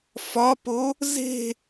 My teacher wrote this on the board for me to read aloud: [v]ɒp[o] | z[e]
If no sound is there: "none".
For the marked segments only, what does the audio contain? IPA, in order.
f, o, e̤

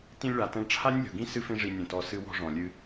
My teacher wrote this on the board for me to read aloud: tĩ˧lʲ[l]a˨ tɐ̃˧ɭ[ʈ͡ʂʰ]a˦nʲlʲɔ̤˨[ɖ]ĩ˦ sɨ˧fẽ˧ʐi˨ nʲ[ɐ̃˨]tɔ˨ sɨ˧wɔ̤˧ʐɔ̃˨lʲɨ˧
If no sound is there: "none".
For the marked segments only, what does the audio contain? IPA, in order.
ɭ, ʈ͡ʂʰ, ɡ, ɐ̃˨

